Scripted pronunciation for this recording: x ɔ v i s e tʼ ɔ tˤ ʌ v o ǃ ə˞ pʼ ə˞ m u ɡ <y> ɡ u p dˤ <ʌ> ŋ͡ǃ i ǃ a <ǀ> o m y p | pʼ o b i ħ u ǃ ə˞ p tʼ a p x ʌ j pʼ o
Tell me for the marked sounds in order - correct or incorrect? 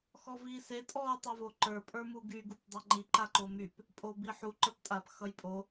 correct, correct, incorrect: ǃ

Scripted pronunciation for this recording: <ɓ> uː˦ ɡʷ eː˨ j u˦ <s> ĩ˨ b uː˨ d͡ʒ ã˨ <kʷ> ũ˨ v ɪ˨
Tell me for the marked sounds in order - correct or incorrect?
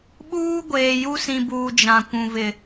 correct, correct, correct

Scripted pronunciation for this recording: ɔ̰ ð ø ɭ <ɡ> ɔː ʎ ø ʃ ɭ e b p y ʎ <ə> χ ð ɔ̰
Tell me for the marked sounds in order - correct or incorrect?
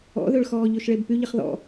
incorrect: x, correct

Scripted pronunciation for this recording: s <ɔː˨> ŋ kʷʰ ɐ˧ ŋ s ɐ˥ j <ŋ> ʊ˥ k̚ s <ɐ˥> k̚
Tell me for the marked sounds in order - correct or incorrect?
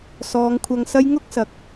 incorrect: ɔː˨˧, correct, incorrect: ɐ˨˥

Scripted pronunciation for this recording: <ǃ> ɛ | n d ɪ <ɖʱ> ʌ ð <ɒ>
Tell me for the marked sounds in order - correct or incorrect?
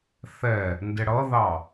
incorrect: θ, incorrect: ɽ, incorrect: ɑ

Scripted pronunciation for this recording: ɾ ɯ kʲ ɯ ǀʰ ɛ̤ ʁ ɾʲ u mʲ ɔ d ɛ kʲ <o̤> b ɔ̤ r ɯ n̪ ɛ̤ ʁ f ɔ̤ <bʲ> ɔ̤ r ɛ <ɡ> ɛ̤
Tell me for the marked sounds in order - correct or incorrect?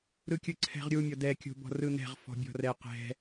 correct, correct, incorrect: q

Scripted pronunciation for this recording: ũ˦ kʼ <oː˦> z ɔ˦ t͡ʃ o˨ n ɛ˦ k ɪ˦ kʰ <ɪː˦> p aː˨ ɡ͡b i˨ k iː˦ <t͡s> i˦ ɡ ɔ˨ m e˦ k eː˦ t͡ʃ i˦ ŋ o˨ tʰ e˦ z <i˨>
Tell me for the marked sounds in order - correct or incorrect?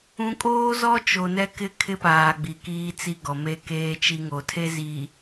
correct, incorrect: ɪ˦, correct, correct

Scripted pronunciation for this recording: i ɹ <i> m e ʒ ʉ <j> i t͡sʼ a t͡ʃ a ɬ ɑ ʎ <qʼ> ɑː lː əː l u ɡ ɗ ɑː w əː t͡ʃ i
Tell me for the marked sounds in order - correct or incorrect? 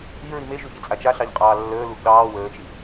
correct, incorrect: ç, correct

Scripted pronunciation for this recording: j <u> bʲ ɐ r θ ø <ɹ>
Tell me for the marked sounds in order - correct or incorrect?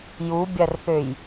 correct, incorrect: j

